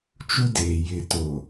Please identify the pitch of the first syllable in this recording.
high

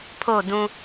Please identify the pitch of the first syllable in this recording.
falling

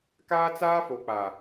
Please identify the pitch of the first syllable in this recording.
high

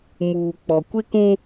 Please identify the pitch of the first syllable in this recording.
low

